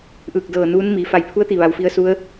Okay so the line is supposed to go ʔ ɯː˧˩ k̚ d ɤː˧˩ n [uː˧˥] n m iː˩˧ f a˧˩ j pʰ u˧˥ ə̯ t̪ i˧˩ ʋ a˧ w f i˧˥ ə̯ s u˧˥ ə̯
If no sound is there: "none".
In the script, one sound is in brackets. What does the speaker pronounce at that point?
uː˧˥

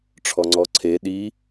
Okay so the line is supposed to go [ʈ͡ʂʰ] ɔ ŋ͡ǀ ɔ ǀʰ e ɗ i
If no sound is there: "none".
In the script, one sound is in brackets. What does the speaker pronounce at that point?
ʈ͡ʂʰ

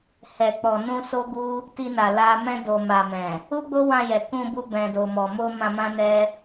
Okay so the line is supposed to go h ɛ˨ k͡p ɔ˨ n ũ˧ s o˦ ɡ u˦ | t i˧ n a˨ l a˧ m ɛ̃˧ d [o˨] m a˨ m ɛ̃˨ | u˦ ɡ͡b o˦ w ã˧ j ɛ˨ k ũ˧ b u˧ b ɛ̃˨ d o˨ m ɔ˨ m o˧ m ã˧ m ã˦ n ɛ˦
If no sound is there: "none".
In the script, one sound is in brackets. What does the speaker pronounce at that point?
o˨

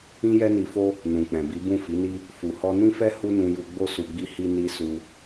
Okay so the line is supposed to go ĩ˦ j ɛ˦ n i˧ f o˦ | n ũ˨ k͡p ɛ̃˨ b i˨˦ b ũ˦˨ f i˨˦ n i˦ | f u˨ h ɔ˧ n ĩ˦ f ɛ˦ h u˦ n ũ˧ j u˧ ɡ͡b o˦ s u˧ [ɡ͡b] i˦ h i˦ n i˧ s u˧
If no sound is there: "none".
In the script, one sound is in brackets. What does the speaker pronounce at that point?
ɡ͡b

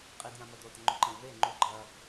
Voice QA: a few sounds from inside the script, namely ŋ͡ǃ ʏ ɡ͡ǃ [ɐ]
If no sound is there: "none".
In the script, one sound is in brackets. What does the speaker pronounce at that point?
ɐ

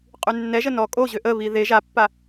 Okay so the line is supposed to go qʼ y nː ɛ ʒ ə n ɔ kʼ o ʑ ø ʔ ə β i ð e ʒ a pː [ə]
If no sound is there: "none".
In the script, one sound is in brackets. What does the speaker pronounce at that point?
a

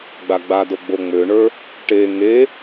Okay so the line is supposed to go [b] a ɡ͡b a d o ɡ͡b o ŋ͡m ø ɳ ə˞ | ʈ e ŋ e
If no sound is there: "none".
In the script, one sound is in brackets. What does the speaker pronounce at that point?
ɡ͡b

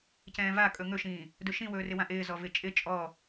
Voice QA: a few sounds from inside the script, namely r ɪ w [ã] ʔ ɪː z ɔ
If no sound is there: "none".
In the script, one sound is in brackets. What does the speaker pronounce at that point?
ã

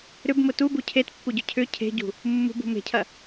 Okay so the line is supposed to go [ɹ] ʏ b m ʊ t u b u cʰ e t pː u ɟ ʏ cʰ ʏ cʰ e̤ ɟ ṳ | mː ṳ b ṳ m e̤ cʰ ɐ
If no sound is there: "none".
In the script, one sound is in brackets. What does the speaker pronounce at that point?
ɾ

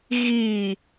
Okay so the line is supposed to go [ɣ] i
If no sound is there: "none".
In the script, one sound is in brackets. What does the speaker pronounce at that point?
ɣ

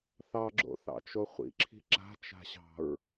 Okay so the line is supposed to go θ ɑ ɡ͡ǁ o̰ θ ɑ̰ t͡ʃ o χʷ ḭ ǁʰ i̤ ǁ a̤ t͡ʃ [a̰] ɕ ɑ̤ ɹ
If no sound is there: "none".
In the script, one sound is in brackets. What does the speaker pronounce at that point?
a̤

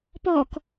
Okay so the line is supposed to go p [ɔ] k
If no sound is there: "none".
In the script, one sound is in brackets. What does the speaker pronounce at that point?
ɔ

